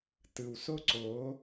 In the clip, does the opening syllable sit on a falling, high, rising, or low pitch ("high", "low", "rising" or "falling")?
low